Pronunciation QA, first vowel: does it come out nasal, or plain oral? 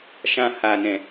nasal